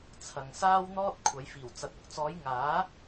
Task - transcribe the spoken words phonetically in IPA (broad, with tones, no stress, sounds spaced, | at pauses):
t͡sʰ ɐ˨ ŋ s aː˥ w n̪ ɔː˥ t̚ kʷʰ ɐ˨˧ j f iː˨˩ w t͡s ɐ˨ t̚ ʊ˨˥ k̚ t͡s ɔː˨˧ j ŋ aː˨˥